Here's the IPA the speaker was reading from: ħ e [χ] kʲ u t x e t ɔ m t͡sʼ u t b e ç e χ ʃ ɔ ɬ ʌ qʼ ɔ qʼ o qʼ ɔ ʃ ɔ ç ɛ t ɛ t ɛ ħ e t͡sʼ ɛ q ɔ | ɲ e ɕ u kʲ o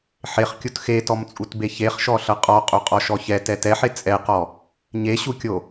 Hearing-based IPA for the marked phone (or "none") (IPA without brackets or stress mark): χ